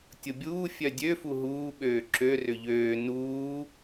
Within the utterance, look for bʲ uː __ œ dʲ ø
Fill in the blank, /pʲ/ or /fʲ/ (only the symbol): fʲ